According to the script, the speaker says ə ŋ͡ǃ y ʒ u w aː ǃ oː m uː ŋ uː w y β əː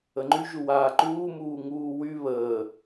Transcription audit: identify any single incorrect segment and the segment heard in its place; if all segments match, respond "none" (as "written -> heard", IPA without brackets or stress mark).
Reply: oː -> uː